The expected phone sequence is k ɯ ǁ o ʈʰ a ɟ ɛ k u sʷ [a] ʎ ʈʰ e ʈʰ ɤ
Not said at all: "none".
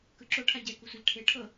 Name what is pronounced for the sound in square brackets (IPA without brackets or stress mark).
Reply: a